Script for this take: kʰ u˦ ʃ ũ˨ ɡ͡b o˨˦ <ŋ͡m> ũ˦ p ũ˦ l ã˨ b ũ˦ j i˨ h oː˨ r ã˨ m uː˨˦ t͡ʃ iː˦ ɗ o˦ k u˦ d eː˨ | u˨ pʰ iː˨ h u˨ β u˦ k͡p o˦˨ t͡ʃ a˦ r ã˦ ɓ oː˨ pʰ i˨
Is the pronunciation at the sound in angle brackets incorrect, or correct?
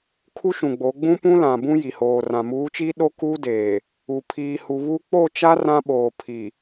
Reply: incorrect: ɡ͡b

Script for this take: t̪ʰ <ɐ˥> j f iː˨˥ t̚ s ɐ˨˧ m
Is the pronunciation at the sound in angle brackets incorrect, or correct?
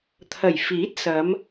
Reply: incorrect: ɐ˨˩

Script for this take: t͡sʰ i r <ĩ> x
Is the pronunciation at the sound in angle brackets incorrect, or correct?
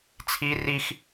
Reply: incorrect: i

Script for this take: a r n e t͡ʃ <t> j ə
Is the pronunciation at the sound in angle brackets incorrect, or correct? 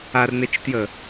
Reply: correct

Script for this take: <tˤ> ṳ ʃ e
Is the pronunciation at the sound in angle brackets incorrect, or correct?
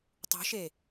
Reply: correct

